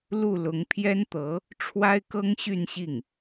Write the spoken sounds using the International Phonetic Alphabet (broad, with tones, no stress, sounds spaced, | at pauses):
l u˥˩ l ʊ˧˥ ŋ pʰ j ɛ˥ n t̪ ɤ˧˥ | ʈ͡ʂʰ w a˥ ɪ̯ k ɤ˥ ŋ ɕ y˥˧ n ɕ i˥˩ ŋ